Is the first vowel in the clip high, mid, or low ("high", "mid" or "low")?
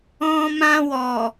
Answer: mid